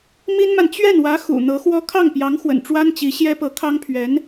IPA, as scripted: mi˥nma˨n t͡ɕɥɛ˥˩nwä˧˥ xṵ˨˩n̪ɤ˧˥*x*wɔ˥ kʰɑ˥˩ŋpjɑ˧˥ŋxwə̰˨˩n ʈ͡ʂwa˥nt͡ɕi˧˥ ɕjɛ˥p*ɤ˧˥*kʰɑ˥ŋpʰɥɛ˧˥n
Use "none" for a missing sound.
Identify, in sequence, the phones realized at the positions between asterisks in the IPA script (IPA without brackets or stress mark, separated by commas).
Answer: x, ɤ˧˥